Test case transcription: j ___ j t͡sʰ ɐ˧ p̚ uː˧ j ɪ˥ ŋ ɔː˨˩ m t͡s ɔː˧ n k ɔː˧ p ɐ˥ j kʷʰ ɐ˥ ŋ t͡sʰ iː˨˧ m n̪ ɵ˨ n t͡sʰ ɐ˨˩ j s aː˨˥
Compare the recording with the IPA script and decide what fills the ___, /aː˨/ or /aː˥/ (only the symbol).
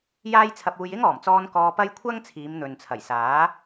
aː˥